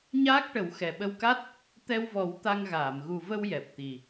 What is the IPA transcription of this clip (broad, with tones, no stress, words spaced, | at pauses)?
ɲaː˦˥k̚ʈə˨˩˦wxɛ˨˩ ɓə˧wka˦˥t̚ | t̪ɛ˧wvɔ˨˩˦w t̪a˧ŋɣaː˨˩˨m ɣu˨˩və˧w jɛ˨˩p̚t̪i˨˩